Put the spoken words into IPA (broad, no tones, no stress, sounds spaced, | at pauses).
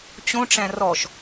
t͡ɕ õ ʈ͡ʂ æ̃ r ɔ ʃ